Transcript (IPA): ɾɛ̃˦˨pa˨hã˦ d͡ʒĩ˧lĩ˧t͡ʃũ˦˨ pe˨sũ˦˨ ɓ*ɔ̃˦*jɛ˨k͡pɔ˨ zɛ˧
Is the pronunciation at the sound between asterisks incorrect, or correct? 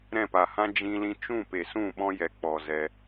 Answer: correct